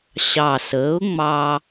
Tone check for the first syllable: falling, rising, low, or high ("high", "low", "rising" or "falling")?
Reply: low